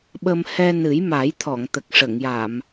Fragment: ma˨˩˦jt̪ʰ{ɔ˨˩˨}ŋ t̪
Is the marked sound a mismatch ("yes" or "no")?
no